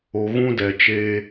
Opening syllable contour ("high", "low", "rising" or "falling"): low